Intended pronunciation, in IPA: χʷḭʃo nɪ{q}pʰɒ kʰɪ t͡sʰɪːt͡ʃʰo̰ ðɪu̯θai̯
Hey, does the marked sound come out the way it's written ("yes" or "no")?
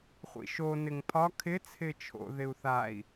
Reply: no